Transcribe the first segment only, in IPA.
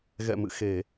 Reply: ɣ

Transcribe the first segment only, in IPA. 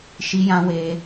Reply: ʃ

